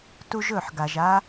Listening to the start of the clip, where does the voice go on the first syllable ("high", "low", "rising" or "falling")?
high